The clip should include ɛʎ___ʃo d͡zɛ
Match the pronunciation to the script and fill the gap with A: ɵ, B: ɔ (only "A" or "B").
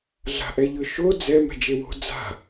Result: A